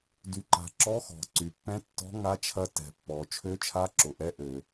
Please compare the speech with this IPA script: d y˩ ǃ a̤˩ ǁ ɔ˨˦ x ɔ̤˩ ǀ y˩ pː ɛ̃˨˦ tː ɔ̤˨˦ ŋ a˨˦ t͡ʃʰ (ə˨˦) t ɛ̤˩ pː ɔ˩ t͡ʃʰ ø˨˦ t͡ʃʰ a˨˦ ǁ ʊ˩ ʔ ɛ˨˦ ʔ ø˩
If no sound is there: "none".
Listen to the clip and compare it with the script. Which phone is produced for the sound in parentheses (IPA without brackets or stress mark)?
ɐ˨˦